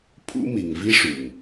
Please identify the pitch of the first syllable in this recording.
high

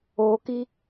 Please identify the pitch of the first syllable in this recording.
low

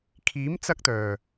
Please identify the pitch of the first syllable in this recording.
rising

